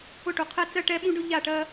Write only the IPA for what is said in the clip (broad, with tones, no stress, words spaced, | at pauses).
ʊ˦˨ʈu˨qʰɛ˦ t͡sɜ˦ʈɛ˦ɓũ˦ɖʊ˦ ʎa˦˨ʈɜ˦